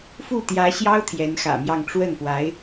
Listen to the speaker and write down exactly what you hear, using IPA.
f u˥˩ t̪ j ä˧˥ ɕ j ɑ˥ ʊ̯ t̪ʰ j ɛ˧˥ n x ä̰˨˩ m j ɑ˥˧ ŋ ʈ͡ʂ w ə˥˩ n p w a˧˥ ɪ̯

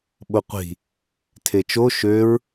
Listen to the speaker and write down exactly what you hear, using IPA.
ɓ o qʷ i̤ | tʰ e t͡ʃ o ʃ ø ɹ

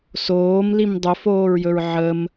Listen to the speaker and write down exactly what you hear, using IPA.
s oː m l i m dˤ ɵ f oː ɹ j ɵ ɹ ʕ ə m

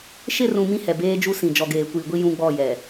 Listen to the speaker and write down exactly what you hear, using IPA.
ʃ ɪ˦˨ r ũ˨ m ĩ˦ h ɛ˨ b eː˦ d͡ʒ u˦ s ĩ˨ d͡ʒ ɔ˨ ɡ eː˨ kʷ iː˨ ɡʷ i˦ j ũ˦ ɡ͡b ɔ˦˨ j ɛ˨

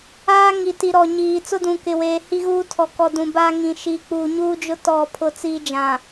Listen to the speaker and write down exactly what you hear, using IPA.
aː˦ ŋ i˨ t i˨ ɾ ɔ˨ ɲ iː˨ t͡s ʊ˦ d ũ˨ k ɪ˨ w eː˨ h i˦ ɣ uː˦ tʰ ɔ˨ k ɔ˨ d ũ˨ b a˦ ŋ ĩ˨ ʃ i˨ k͡p uː˨ ɲ uː˦ d͡ʒ ʊ˦ t ɔ˦˨ pʰ ʊ˦˨ t͡s iː˦ d͡ʒ ã˨

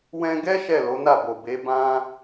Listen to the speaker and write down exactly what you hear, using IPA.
w ɛ̃˧ ɡ ɛ˦ ʃ ɛ˦˨ l o˨˦ n a˦˨ b o˨ b e˨˦ b ã˦

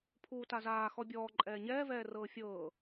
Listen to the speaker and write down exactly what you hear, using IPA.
pʰ uː t a z aː x ɔ bʲ ɔː ǃʼ ɛː ɲ ɛː v ɛː r ɤː fʲ ɤː

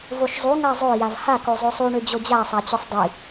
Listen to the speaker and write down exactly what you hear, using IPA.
v o ʃ zˤ u ŋ a zˤ o j a v h a k o zˤ o sˤ u ɳ ø d͡ʑ o d͡ʑ a sˤ a t͡ɕ ø sˤ dˤ i

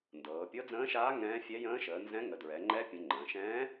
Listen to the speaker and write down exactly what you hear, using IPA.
n d ɤː˩˧ pʲ ɤ˧˥ d͡z ə̃ː˧˥ ʃ aː˧˥ ŋ ɛ̃ː˧˥ fʲ ɛ˧˥ j ə̃ː˧˥ ʃ əː˩˧ n z ɛ̃˧˥ ŋ ə˩˧ d ɹ ɛ˩˧ ŋ͡ǃ ɛ˧˥ pʲ ə̃˩˧ ŋ͡ǃ ə̃ː˩˧ ʃ ɛ̃ː˧˥

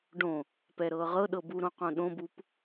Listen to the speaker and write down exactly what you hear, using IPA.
ɖ õ | p ɛ ɾ ɤː ʁ ɤ ɗ ɤ b u ɾ õ q õ ɗ õ b u p

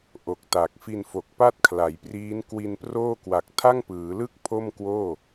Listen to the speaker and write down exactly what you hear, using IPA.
ʔ o˨˩ k̚ t a˨˩ k̚ f i˧ n f o˨˩ k̚ p a˥˩ t̚ kʰ l a˩˦ j p r iː˦˥ n k w i˧ n p r oː˥˩ k w a˨˩ k̚ tʰ a˥˩ ŋ p ɯː˩˦ l ɯ˥˩ k̚ pʰ o˥˩ m k w oː˥˩

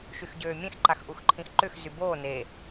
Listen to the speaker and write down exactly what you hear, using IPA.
ʃ y x ɟ øː mʲ ẽ x ǃ a x ʔ u x ǃʰ ĩ x ǃ ʏ x z y b oː n e

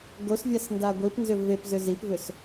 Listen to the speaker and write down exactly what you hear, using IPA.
ɡ o s vʲ a s n d a ɡʷ i p n z ʏ v e p z ʏ z i p v ʏ s

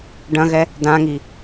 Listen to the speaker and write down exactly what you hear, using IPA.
ɖ ɐ̃ ɣ ɛ | d ã ŋ i

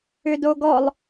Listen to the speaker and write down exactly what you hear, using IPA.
ʏ d o ɡ ɔ lˠ

